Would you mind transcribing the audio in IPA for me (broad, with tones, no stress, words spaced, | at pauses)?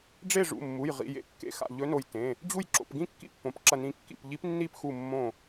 ɖ͡ʐe˥˨ ʐṵ˩˧˩mːu˩˧˩j ʁḭ˩˧˩jḛ˧˥kːḛ˧˩ xa̰˧˩ʎɵ˧˥no˧˩j tẽ˩˧˩ | d͡ʑu˥˨j ǁo̰˩˧˩pɡĩ˥˨kːḭ˥˨pːõ˩˧˩p ǁɐ˧˩nĩ˧˩kːḭ˧˩p ʎi˧˥pnːi˥˨pxu˧˩ mːõ˧˩